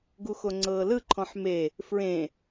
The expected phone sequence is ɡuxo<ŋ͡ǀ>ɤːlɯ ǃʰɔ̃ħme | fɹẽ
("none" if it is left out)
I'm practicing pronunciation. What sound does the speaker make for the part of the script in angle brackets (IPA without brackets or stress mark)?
ŋ͡ǀ